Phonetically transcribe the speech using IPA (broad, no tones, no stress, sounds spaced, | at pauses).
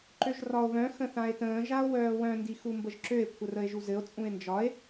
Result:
ǃ ø ʒ r ɒ o̯ β œ̃ x ə̃ θ ã e̯ t ə̃ː ʒ a o̯ w œː w œ̃ n d i x u m b ə ʒ ǁ ø e̯ kʷʰ ə r ə e̯ ʒ u z ɘ o̯ t͡sʼ ũ e̯ n d͡ʒ ɒ e̯